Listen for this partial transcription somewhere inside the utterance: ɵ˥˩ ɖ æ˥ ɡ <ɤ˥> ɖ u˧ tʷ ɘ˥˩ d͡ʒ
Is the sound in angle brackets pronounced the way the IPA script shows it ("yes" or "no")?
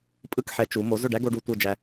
no